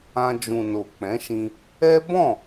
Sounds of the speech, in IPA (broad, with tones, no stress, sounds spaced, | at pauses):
ã˧ d͡ʒ ũ˨ n o˨ k͡p ɛ̃˨˦ ʃ ĩ˧ | ɛ˦ b ɔ̃˦˨